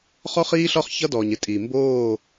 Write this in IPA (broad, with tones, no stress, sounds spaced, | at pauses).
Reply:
χ ɔ˦ χ iː˦ ɬ ɒ˦ χ ç ʌ˦ d ɔː˨ ɲ ɪ˦ tʼ iː˨ m b oː˦˨